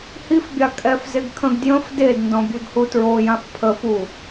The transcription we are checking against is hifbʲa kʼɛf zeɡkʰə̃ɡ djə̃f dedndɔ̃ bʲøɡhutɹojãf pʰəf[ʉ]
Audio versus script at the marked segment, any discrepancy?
yes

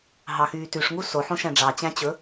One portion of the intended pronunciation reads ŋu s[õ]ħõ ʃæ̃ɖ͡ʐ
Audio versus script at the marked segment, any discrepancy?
yes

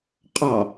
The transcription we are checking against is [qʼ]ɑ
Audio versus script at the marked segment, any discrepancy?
no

